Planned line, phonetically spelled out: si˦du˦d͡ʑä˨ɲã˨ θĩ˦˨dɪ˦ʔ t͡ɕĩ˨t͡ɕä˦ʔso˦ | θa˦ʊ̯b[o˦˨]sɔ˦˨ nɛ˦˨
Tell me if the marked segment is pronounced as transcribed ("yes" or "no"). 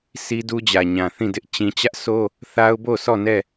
yes